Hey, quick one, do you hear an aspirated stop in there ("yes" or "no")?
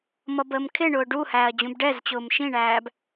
yes